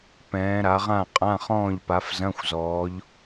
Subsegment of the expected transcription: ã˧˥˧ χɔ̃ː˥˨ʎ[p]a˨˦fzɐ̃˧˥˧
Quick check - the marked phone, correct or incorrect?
correct